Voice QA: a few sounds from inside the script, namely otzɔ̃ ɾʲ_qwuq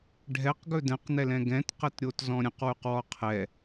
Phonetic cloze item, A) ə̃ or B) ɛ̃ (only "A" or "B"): A